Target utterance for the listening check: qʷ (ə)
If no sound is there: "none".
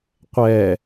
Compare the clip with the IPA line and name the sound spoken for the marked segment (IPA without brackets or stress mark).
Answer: ɛ